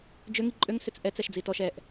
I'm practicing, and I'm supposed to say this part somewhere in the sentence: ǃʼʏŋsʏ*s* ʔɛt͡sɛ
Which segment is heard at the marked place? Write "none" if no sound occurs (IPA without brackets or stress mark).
t͡s